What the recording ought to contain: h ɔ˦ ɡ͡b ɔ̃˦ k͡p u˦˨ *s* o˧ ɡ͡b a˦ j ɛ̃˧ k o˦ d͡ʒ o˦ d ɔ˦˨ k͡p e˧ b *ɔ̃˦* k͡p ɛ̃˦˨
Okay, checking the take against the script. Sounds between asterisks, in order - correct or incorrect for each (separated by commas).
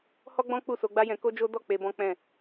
correct, correct